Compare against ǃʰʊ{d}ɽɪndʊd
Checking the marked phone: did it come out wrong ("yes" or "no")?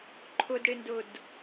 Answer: no